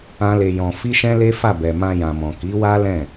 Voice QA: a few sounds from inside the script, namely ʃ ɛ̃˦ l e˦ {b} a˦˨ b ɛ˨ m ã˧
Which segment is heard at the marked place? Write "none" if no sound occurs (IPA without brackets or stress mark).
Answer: f